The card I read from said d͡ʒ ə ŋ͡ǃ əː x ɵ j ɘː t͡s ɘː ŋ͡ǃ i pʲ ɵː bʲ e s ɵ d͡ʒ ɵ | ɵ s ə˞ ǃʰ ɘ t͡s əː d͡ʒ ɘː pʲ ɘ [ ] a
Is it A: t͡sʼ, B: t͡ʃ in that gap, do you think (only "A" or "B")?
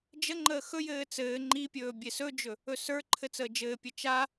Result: B